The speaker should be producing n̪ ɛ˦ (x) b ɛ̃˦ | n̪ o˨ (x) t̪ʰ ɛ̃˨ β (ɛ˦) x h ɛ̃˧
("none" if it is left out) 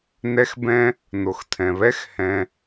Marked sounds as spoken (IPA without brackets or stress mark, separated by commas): x, x, ɛ˦